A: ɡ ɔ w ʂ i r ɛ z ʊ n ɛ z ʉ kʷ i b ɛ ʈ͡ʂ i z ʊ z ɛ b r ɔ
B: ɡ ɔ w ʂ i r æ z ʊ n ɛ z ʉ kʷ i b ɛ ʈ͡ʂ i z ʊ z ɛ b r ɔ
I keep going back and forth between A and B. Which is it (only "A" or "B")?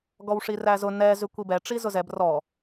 B